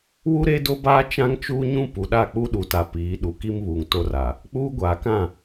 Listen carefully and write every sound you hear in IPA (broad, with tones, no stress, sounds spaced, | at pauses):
w u˦ ɾ e˦ d o˦ b aː˦ t͡ʃ ã˦ ŋ t͡ʃ uː˦ ɲ ũ˦ p u˨ ɗ a˦˨ k͡p u˦ ɗ u˨ t a˨ p iː˨˦ ɗ u˨ k i˦ m β uː˨ ŋ t o˦ r a˨ | k͡p uː˦ ɡʷ aː˨ k ã˦˨